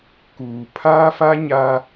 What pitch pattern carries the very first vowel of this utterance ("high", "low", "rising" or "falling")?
low